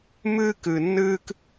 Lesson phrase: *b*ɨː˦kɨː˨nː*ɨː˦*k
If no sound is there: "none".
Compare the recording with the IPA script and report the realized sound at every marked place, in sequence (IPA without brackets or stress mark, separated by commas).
m, ɨː˦